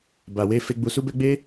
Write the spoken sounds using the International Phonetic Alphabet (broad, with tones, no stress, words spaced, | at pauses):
ba˨we˧ fe˨ɡ͡bu˨su˧bɛ˧ ɡ͡be˦